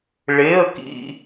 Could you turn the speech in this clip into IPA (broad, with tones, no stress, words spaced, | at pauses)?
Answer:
ɭe˧˥˧ə̯ kḭ˥